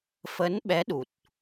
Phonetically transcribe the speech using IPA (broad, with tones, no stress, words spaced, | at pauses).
fə˨˦nɓɛ˨˦ ɗu˨˩t̚